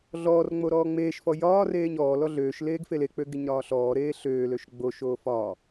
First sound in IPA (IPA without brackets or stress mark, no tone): ɮ